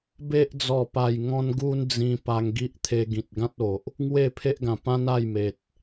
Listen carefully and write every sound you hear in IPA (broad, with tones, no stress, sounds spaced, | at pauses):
b e˦ ʔ d͡z ɔ˨˩ p a˨˩ j ŋ ɔ̃˧ n ɡ u˦ n d͡z ĩ˧ p a˧ ŋ ɡ i˦ ʔ t̪ʰ e˧ ɡ ĩ˨ t̚ ɡ ã˦ t̚ o˨ ʔ | ŋ w e˥˧ pʰ e˦ ʔ ɡ ã˨˩ p ã˦ n a˥˧ j m e˨ t̚